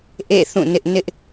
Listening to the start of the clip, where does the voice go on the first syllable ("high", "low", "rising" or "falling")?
falling